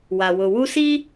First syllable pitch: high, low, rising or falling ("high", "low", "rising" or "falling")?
low